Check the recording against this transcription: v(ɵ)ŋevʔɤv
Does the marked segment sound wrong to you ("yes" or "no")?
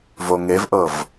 yes